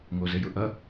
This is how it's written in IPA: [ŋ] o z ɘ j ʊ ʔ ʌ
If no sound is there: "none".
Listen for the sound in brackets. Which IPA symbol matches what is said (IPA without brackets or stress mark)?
ŋ